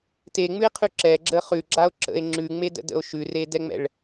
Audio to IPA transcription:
t e ŋ͡m ʉ e̯ qʰ ʉ ǁ ɛ ɡ͡ǁ ə χ ʉ ɡ͡ǁ a o̯ ǁ ə̰ e̯ ŋ͡ǁ ʉ ŋ͡m e d ə̰ d ə̰ o̯ ʃ ʉ r e d ɛ ŋ͡m ɛ̰ ɭ

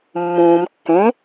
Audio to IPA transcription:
mː ũː m kː ẽ

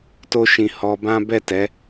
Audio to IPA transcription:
t o˦ ʃ ĩ˧ h ɔ˧ b ã˦ b ɛ˦˨ t ɛ˨˦

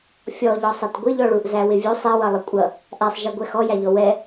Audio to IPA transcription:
fʲ ɔ ʎ ɔ sˤ ɛ t ɡʷ ɪ ʎ ɔ ɭ u ʔ z æ w ɪ vʲ u sˤ ɛ w ʌ lˠ ɪ kʷʼ ʌ | ʔ æ sˤ ʒ ɛ ɡʷ ɛ x ɔ j æ ʎ ɔ w ɛ

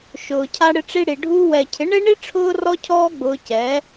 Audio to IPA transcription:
ʃ ʊː˨ cʰ a˦ ɽ ɪ˦ ʈ͡ʂ i˦ ɽ i˨ ɖʱ uː˧ w ɛ˨ cʰ ɪ˨˦ ɳ e˦ ɳ i˦ ʈ͡ʂʰ ʊː˦ r ɔ˦ cʰ ɔː˦ ɡ͡b ʊː˧ c ɛ˨˦

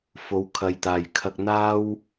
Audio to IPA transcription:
f o˨˥ w kʰ ɐ˨ j t̪ aː˨˩ j kʰ ɐ˧ k̚ n̪ aː˥ w

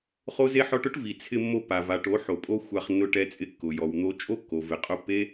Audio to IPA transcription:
χ o˦ z e˦ ħ ɔ˦ ʈ ʊ˦ ʈ v i˨ t͡sʰ ɪ˧ mː o˧ pː a˨ v a˨ ʈ o˨˦ ħ o˨ pʼ o˧ xʷ a˧ χ nː ʊ˧ ʈ ɛ˧ t͡sʼ ɪ˧ kː ʊ˨ j ɔ˨ w n̪ o˧ t͡ʃʼ o˦ kː o˨ v ɪ˨ qʼ ʊ˧ pː e˦

